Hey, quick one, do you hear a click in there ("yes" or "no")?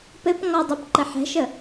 yes